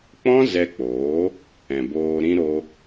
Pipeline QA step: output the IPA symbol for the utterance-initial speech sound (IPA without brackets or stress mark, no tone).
k͡p